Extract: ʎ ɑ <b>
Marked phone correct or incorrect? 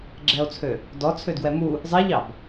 correct